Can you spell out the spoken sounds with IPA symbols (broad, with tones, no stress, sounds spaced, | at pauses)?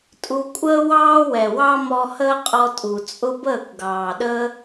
tʼ u˧ kʷʼ əː˦ w ɑː˦ w ɛ˨ w ɑ˦ m ɔ˧ h əː˦ qʼ ɔ˧ tʼ u˨ t͡sʼ ʊ˦ b əː˦˨ kʷ ɡ ɑː˨ ɗ əː˦